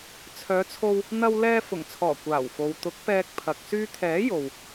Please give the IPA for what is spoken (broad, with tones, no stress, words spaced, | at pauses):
t͡sʰœː˨˧t͡sʰo˧w | n̪ɐ˧w lɛː˧fʊ˨˩ŋt͡sʰɔː˨˩ kʷaː˨˩wfo˨w t̪ʊ˨˥k̚pɛː˧k̚pʰɐ˨k̚ syː˧t̪ʰɛː˨˥ jo˨w